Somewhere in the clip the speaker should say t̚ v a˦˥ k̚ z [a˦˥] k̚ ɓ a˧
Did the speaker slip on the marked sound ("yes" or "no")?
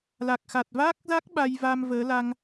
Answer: no